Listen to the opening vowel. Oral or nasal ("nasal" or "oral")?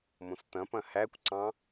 nasal